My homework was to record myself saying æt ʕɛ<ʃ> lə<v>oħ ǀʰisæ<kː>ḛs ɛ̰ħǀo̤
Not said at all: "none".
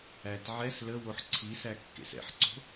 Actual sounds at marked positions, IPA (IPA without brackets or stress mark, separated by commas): s, w, kː